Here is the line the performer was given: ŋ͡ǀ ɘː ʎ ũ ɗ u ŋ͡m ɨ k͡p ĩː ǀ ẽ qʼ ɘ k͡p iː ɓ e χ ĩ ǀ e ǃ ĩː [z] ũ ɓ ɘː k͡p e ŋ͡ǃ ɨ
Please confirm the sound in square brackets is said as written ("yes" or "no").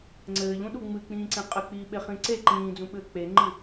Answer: no